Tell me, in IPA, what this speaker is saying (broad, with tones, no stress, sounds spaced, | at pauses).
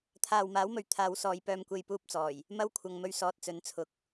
t̪ʰ aː˨ w m aː˨˥ w m ɵ˨ ɥ t̪ʰ aː˨˧ w s ɔː˨˧ j p œː˧ m kʷ e˧ j p uː˧ p̚ t͡s ɔː˨˩ j | m ɐ˥ w kʷʰ ɐ˨ ŋ m ɵ˧ ɥ s ɔː˨ t̚ t͡s ɵ˨˥ n t͡sʰ ʊ˨ k̚